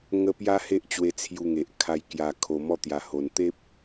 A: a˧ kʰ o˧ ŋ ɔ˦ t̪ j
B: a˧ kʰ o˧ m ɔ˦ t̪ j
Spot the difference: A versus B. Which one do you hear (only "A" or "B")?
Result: B